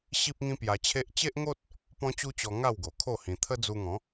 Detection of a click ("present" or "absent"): absent